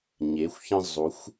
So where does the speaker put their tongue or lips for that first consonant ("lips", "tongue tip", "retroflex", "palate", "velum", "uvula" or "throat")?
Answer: palate